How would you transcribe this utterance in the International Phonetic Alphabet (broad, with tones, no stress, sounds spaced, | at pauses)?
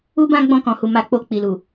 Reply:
u˦ b ã˦ ɡ͡b ɔ̃˧ k ɔ̃˨ h u˨ m a˧ k͡p o˧ k͡p i˨ l u˨